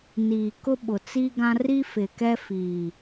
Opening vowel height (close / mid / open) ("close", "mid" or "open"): close